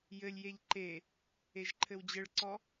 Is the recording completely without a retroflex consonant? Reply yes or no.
no